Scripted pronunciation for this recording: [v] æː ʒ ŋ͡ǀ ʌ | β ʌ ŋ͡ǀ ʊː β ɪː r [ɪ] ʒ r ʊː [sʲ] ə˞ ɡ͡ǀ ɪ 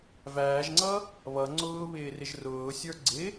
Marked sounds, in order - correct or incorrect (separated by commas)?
correct, correct, correct